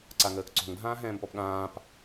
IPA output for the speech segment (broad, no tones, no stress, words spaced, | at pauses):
ǀaŋəːkǀo̤ŋ dʱãːɦɛ̃ːmpɔpɠãːp